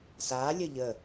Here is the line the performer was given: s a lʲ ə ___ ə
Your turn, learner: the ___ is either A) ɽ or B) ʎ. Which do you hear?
B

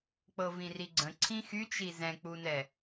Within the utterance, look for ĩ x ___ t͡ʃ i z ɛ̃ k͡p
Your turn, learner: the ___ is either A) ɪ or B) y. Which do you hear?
B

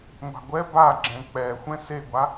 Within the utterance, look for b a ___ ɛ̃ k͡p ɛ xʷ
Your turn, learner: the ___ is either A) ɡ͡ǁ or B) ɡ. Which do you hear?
A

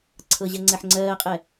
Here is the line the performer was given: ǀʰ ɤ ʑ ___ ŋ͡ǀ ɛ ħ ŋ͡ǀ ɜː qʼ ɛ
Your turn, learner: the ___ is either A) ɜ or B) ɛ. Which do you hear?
B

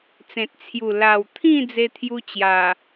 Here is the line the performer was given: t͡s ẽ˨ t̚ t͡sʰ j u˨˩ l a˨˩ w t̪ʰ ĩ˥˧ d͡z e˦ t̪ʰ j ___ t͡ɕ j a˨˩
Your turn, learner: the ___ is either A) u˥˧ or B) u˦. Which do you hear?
B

